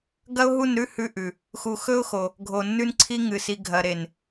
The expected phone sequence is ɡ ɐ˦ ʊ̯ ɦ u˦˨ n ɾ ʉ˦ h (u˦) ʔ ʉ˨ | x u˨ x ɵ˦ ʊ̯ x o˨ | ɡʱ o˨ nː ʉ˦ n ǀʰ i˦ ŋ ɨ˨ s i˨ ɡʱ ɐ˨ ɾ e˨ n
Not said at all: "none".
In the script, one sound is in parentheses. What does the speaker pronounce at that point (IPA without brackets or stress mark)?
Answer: ʉ˦